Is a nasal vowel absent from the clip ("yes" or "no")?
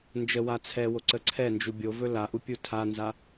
yes